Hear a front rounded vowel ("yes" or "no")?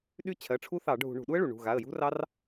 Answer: yes